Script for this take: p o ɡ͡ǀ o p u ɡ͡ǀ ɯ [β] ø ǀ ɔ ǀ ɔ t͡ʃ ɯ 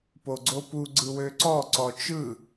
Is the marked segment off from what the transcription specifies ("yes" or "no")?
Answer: yes